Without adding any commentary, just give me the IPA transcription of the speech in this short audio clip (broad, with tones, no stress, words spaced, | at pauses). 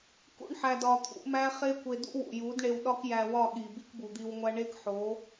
kṵ˦ɳħæ˧d ɒ˧t̪ʰṵ˨˦mæ˦ χe˦kʷe˧dṵ˦ wṵ˨ju˨˦dɳe˧w ɗɒ˦kjæ˧wɒ˦˨ɠi˨ bi˦kbu˨d̪i˧wŋʷæ˦ ɳe˦kħo˨˦